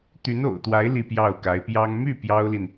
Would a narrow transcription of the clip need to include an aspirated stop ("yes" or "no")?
no